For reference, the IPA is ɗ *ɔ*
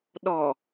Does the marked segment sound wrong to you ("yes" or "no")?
no